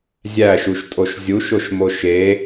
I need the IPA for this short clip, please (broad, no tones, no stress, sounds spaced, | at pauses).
zʲ æ ʃ u ʃ tʼ o ʃ zʲ u ʃ o ʃ m o ʃ e